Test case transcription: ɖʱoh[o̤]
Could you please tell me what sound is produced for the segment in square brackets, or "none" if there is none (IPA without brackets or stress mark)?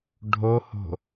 o̤